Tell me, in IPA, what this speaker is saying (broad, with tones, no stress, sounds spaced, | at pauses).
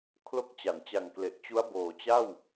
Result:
kʰ l o˦˥ k̚ t͡ɕ a˩˦ n t͡ɕ a˨˩ ŋ k l e˨˩ ʔ t͡ɕ u˦˥ a̯ b oː˨˩ t͡ɕ a˥˩ w